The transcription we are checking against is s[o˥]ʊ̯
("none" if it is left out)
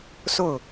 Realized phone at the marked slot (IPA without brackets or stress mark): o˥˩